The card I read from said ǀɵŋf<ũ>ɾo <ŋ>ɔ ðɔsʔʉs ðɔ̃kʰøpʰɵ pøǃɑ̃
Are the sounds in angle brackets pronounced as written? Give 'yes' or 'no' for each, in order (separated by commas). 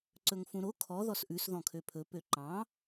yes, no